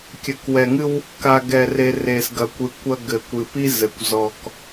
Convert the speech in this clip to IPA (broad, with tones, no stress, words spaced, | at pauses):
kʲɘ˨kwɛ˨ŋɨ˦w | ka˨ɡɛ˨re˨ re˨sɡɐ˨kʷɨ˨ kʷɐ˦ɡɘ˨kʷɨ˨ pi˦ zɘ˨kʷ zɔ˨k